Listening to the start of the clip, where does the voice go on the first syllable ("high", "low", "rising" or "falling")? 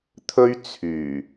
high